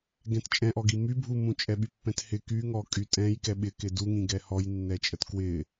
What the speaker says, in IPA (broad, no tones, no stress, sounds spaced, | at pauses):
ɡ ɛ̃ t t͡ʃʼ ɛ̃ ʔ ɔ ɡ i m y bʱ u m ũ t͡ʃʼ ɛ ɓ y pː ɛ̃ t h ɪ k y ŋ ɔ kʼ y tʼ ɛ̃ j k ɛ ɓ ɪ k ɪ d u ŋ ĩ ɡ ɛ h ɔ j nː ɛ t͡ʃʼ ə t k w ɪ